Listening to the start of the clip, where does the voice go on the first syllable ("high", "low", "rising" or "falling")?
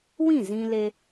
falling